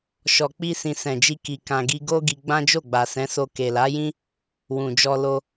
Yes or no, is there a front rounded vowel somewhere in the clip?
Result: no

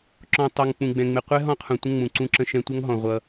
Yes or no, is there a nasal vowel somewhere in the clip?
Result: yes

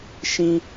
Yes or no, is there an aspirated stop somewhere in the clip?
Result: no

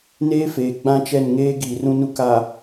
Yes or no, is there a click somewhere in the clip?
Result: no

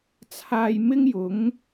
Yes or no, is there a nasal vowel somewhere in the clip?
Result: no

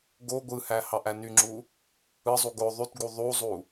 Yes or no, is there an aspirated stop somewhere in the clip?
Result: no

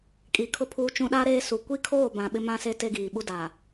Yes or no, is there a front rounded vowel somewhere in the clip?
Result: no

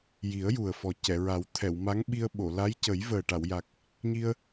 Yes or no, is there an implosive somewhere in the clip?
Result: yes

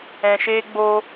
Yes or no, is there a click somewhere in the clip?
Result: no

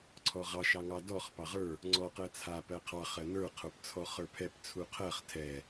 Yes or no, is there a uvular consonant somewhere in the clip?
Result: yes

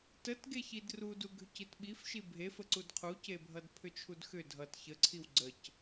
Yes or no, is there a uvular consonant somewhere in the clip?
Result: yes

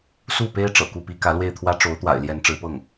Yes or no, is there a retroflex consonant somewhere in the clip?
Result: yes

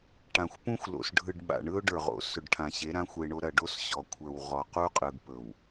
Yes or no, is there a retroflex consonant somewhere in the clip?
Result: yes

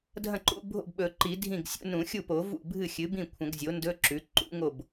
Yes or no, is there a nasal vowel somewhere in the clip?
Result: yes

